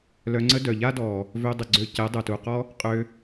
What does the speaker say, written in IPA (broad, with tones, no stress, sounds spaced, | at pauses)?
l œ˧ ŋ͡ǀ ə˦ d œ˨ ʎ a˦ d ɔ˨ | v ø˧ dˤ ə˨ ɡ͡ǀ ø˧ c ɛ˨˦ dˤ œ˨ t u˨ q ɔ˦ | qʼ ø˧